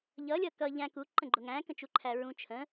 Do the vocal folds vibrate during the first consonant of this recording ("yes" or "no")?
yes